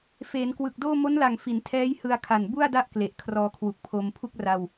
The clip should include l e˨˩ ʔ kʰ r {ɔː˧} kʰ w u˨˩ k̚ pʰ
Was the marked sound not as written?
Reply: no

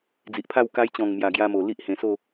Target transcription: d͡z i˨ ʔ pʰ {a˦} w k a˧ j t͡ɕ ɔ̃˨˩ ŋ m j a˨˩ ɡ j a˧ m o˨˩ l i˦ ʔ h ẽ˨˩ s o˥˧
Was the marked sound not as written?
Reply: yes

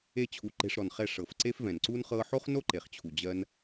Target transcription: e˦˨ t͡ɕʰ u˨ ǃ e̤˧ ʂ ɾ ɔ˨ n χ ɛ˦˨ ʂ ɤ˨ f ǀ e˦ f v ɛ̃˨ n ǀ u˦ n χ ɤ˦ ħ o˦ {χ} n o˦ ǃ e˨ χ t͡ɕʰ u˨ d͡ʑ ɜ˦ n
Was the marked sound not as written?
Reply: no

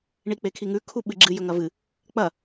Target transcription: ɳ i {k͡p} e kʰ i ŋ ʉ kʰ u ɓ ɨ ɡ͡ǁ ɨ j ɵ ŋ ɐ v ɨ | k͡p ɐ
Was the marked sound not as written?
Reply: no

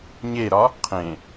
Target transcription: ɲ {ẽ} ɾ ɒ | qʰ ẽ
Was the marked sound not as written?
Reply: yes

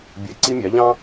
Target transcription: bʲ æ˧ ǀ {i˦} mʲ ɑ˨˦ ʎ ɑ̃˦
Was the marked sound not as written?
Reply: no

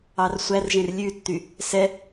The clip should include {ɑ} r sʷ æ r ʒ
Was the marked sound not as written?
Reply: no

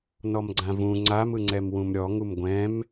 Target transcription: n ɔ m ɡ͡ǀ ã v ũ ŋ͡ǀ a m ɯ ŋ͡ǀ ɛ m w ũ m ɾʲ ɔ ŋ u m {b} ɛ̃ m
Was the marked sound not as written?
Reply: yes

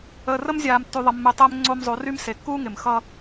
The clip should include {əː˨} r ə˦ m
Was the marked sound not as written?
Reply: no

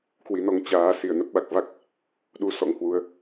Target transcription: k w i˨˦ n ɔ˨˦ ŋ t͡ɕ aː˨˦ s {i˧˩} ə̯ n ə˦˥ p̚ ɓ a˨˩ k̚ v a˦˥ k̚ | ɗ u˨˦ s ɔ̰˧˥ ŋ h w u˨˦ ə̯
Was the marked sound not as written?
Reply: no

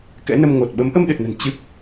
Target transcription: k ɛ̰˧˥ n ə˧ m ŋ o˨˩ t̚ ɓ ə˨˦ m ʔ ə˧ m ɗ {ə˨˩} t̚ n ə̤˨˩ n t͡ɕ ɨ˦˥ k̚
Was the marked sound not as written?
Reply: yes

